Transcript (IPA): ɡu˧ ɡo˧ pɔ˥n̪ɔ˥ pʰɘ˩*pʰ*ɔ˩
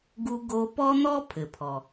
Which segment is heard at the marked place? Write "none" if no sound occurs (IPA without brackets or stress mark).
pʰ